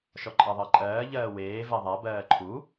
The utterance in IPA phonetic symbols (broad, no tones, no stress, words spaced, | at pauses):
ʃɔǃʼɜðˤɜǃʼɜː ʎɜːweː vɛðˤa bɜːǃʰu